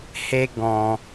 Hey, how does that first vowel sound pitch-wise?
high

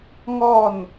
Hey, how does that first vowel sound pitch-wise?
falling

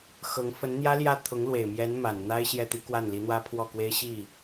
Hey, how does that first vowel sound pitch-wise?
rising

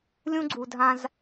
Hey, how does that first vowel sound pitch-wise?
high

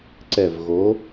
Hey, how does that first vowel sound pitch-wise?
low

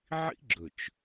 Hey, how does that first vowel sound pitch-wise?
high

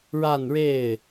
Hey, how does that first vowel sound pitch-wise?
falling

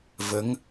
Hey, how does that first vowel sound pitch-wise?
rising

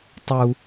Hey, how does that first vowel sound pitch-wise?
high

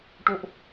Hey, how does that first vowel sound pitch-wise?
high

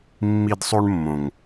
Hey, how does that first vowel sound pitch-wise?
high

